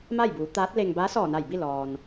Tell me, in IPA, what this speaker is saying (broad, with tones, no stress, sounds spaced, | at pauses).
m a˥˨ j b uː˩˧ t̪ aː˧˥ t̚ l e˧ ŋ b aː˧˥ s ɔː˧˩ n a˧˩ j b i˥˨ l ɔː˩ n